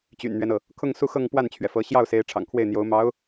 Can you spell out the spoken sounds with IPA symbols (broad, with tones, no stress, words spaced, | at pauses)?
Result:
t͡ɕy̰˨˩nn̪ɥɛ˦nɤ˩ | kʰʊ˥˧ŋ su˥˧xɤ˥˧ŋ pwa˥˩nt͡ɕʰɥɛ˩fɤ˧˥ ɕjɑ˥˩ʊ̯se˧˥ɪ̯ ʈ͡ʂʰɑ̰˨˩ŋkʰwe˥˩ɪ̯n̪jo˧˥ʊ̯ mɑ˧˥ʊ̯